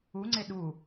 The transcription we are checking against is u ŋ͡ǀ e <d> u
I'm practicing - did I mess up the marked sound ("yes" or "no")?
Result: yes